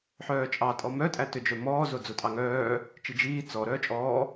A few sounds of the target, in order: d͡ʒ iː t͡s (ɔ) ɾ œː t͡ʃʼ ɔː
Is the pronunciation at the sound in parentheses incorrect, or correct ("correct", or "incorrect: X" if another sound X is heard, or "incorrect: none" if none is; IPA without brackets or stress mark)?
correct